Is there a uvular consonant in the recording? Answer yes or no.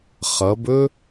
yes